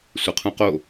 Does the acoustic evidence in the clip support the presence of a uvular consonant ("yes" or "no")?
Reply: yes